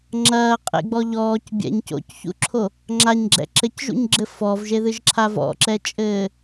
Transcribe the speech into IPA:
ŋ͡ǁ ɐː qʼ ḛ ɡ͡b ɔ ʎ ɔː c bʲ ɛ̰ ɲ c o̰ c ç ṵ ǁʰ o | ŋ͡ǁ a ɲ ɡ͡ǁ ɛ̰ ǁ ɘ c ʒ ṵ ɲ ɡ͡ǁ ɘ f ɔ v ʒ e ð ɨ ʒ ǁʰ a v ɔ̰ ǁ ɛ t͡ʃʼ ɘː

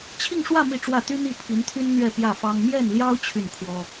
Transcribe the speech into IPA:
t͡ɕʰ i˥˧ ŋ ʂ w ä˥˧ m i˥˧ ʈ͡ʂ w ä˥˩ t̪ y˥ n̪ i˥˩ pʰ i˧˥ n t̪ʰ y˥ n n̪ ɥ ɛ˥˧ p j ä˥˩ f ɑ˥ ŋ m j ɛ˥˩ n l j ɑ˥ ʊ̯ t͡ɕʰ y˥˩ n kʰ w ɔ˥

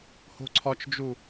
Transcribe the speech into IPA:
h o̤ ǀʰ ɒ t͡ʃ d͡ʒ u

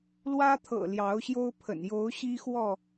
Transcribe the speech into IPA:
l w ä˦ t̪ʰ ɤ̰˨˩ l j ɑ˨˦ ʊ̯ ɕ j o˦ ʊ̯ pʰ ə̰˨˩ n j o˨˦ ʊ̯ ɕ i˦ x w ɔ˥˨

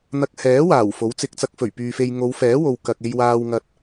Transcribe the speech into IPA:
n̪ ɐ˧ k̚ h ɛː˨˥ w aː˨˩ w f o˨˥ w t͡s ɪ˧ k̚ t͡s ɐ˧ k̚ f ɵ˨˩ ɥ p yː˨ f e˧ j ŋ o˨˧ w f ɛː˨˥ w o˨ w k ɐ˨ k̚ e˧ j w aː˧ w ŋ ɐ˧ t̚

